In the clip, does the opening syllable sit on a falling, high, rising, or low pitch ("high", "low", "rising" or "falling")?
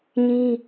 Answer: high